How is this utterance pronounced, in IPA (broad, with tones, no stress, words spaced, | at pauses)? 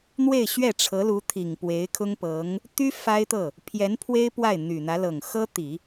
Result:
n̪we˥˧ɪ̯ɕɥɛ˥˩ʈ͡ʂʰɤ˧˥lu˧˥ t̪ʰi˨˩ŋpwe˧˥ɪ̯kʰʊ˥ŋpɤ˧˥ŋ | t̪y˥ fa˥ɪ̯t̪ɤ˥˩ | pʰjɛ˧˥npʰwe˥ɪ̯ pwa˥˩ɪ̯n̪y˨˩n̪ä˧˥ lɤ˨˩ŋxɤ˥t̪i˨˩˦